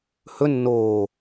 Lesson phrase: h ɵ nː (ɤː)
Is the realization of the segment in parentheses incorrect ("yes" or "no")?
yes